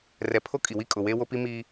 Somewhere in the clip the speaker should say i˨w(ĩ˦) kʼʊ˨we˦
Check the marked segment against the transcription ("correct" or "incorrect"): incorrect